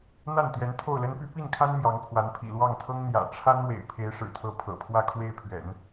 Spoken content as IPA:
n̪ a˥˩ n t̪ j ɛ˧˥ n t̪ʰ o˥˩ ʊ̯ l ə˥ n p y˥ p i˥˩ n kʰ a˥ n m j ɑ˧˥ ŋ pʰ w a˧˥ n pʰ ḭ˨˩ l w ɑ˥˩ ŋ t̪ʰ ɤ˥ ŋ n̪ j ä̰˨˩ ʈ͡ʂʰ a˥ n w ḛ˨˩ ɪ̯ pʰ e˧˥ ɪ̯ ʂ ɻ̩˨˩ t̪ʰ ɤ˧˥ pʰ ɤ̰˨˩ pʰ w ä˥˧ kʰ w e˥˩ ɪ̯ pʰ ɥ ɛ̰˨˩˦ n

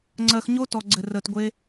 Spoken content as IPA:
ŋ͡ǀ ɜ˨ x ɲ o˧ t ɔ˨ ɡ͡ǀ ɘ˨ r əː˨ t ɡʷ e˧

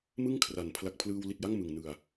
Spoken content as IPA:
m ɯ˥˩ ŋ kʰ r a˩˦ n pʰ l a˨˩ k̚ pʰ l ɯː˧ w l i˨˩ t̚ j a˥˩ ŋ m ɯ˨˩ ŋ n ɯ˨˩ a̯

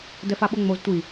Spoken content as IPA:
d ɛ f a ɓ o ŋ͡m o z tʷ i

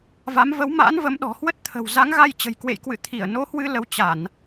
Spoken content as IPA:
v a˨˦ m v ə˨˦ w m a̰˧˥ n v ə˨˦ m ɗ ɔ̤˨˩ h w ə˦˥ t̚ t̪ʰ ə̤˨˩ w z a˨˦ ŋ ɣ a˧ j t͡ɕ ə̤˨˩ j k w ḛ˧˨ j k w ɨ̰˧˨ t̪ʰ i˧˩ ə̯ n o˨˦ h w ɨ˧ l ə˧ w t͡ɕ a˧˩˨ n

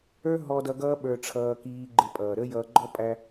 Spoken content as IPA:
ə˞˦ ɦ ɔ˧ d ʌ˧ ɡ ʌː˦ ɓ ə˞˧ ʈ͡ʂʰ ʌː˧ k iː˧ ɡ͡ǃ ɪ˧ pʼ ʌː˨ ɾ ə˦ j ʌː˧ ɡ͡ǃ ɔ˦ pʼ æ˧

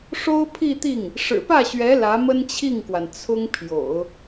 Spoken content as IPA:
ʂ o˥ ʊ̯ pʰ i˥˧ t̪ i˥˩ ŋ | ʂ ɻ̩˨˩ p ä˥˩ ɕ ɥ ɛ˧˥ l ä˧˥ m ə˥ n t͡ɕʰ i˥˩ ŋ k w a˩ n t͡sʰ ʊ˥ ŋ pʰ j o̰˨˩˦ ʊ̯

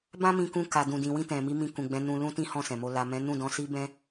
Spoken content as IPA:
b ã˦ m ĩ˧ k ũ˧ k a˨ d ũ˨ d ĩ˨ w ĩ˧ t ɛ̃˨ m i˨˦ m ĩ˧ k ũ˨ ɡ͡b ɛ̃˨˦ n ũ˧ l ũ˦ t ĩ˦ h ɔ̃˦˨ s ɛ̃˨ m o˧ l a˨ m ɛ̃˨˦ n ũ˦˨ d ɔ̃˧ s i˦ b ɛ̃˦

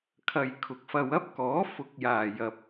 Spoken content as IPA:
kʰ ɐ˨ j kʰ ʊ˨ k̚ f ɐ˧ w ɐ˥ p̚ k ɔː˨˥ f ʊ˨ k̚ j aː˨˩ j ɐ˨ p̚

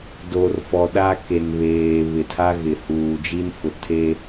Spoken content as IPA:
d o˨ r f ɔ˨ ɗ a˦ k e˨ n β eː˨ β ɪ˨ tʰ a˦ ɣ ɪ˨ h uː˨ d͡ʒ i˦ n f ʊ˨ tʰ e˦

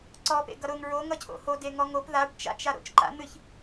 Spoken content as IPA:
ǀ ɔ p ḛ ɡ ʌ ɾ ʊ ŋ ɹ o ŋ ʌ cʰ o̰ h o d e ŋ ɔ ŋ o p ð a ɖ t͡ʃ a̰ t͡ʃ a ɾ o̰ t͡ʃ ǃ a̰ n̪ ɨ ç

